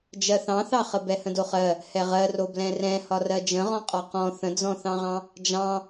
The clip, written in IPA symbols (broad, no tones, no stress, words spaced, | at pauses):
d͡ʒɜθɑ̃θɑχə bɛhə̃doχɜ | hɛʁɜro blɛ̃rɛ̃ hɒrɜd͡ʒə̃ʁɔ̃ qʼɒqɔ̃ θə̃d͡zɔ̃θɑ̃ʁɑ̃ | d͡ʒɑ̃